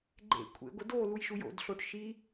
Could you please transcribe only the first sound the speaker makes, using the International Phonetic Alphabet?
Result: ɡ͡ǃ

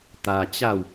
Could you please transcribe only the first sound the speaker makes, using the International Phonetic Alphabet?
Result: t̪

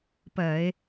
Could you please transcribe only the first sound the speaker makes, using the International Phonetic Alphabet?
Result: p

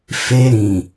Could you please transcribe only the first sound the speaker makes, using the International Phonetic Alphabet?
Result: f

